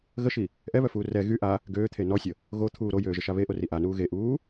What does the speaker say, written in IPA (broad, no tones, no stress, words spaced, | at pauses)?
ɣəʃi | ʔɛβœfuː rɛ ɣy ʔa | ɡøːt̪ʰe nɔsʲə | ɣot̪ʰuː ɾojøːʒəʃa βeʔori ʔanuː ɣeʔuː